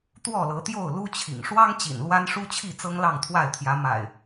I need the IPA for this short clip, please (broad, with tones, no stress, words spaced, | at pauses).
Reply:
t̪wɔ˥˨lɤ˨˦t̪jo˥˨ʊ̯ lu˦t͡ɕʰḭ˨˩ŋ ʂwɑ˦ŋt͡ɕḭ˨˩n lwa˦nʂu˦t͡ɕʰi˥˨ t͡sɤ˦ŋlɑ˥˨ŋt̪ʰwa˥˨ɪ̯t̪ʰjä˨˦ ma̰˨˩ɪ̯